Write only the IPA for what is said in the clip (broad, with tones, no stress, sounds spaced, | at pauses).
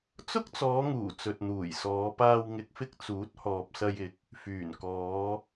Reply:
t͡s ʊ˥ k̚ t͡s ɔː˨˧ ŋ uː˨˩ t͡s ɵ˨ t̚ n̪ uː˨˩ j s ɔː˨˧ p aː˧ w ŋ ɪ˨˥ k̚ f ɪ˧ k̚ t͡s uː˨˥ t̚ h ɔː˨ p̚ s ɐ˧ j ɪ˨˥ k̚ | f yː˨˩ n k ɔː˨˧